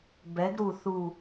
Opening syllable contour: rising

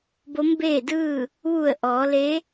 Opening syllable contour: rising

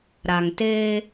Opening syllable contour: low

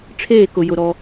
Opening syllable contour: falling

